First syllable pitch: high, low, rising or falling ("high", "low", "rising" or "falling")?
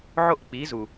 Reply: high